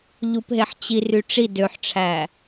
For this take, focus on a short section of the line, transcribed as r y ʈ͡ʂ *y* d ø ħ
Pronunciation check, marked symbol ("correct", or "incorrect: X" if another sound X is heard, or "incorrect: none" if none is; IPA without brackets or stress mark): incorrect: i